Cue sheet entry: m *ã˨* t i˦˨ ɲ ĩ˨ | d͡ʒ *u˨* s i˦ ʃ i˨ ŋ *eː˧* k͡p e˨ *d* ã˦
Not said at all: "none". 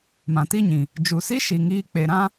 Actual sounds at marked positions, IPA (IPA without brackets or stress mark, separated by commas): ã˨, u˨, iː˧, ɾ